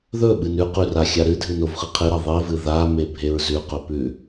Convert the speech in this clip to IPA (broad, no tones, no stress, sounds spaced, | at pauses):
ð ɵ ɓ ɨ n ʉ q ʉ r a xʲ a ɾ ɨ dʱ ɨ n o v χ ɨ qʰ ɨ ɾ a ðˤ i v ɨ ð a m e bʱ e ɹ z ʉ q ɵ p ʉ